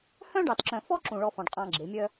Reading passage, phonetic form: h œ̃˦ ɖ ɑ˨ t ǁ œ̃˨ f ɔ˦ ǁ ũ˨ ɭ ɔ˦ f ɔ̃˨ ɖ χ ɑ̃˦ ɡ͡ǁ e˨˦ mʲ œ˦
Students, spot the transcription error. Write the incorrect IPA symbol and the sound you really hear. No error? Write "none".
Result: χ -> qʼ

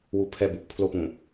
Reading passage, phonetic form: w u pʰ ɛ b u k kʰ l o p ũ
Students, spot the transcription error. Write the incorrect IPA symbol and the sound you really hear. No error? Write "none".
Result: kʰ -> pʰ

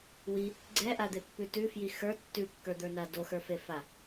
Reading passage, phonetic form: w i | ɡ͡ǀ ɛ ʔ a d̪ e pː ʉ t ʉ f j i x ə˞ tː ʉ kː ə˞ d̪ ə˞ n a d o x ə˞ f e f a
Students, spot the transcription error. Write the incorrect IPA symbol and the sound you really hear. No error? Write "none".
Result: none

